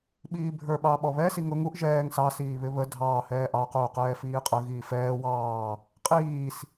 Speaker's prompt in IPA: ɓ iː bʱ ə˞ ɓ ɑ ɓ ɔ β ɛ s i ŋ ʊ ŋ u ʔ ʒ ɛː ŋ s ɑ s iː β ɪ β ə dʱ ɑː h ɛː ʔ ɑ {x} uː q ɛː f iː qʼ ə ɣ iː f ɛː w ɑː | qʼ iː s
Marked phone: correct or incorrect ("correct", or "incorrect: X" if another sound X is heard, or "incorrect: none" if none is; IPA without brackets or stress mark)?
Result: incorrect: q